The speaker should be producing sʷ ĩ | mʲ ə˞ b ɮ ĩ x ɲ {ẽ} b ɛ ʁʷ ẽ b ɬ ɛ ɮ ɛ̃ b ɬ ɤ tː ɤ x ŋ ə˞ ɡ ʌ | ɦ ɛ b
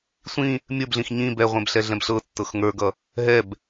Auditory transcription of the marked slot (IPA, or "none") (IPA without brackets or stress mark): ĩ